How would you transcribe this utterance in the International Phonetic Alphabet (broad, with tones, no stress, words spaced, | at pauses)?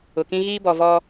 ʊ˨kĩ˦ ɣiː˦bɔ˨vɔ˦